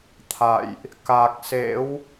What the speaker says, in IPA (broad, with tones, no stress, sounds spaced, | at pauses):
t̪ʰ a̰˧˨ j ʔ | k a˨˩ k̚ s ḛ˧˥ w